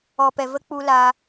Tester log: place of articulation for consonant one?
labial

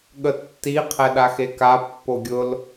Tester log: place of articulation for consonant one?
velar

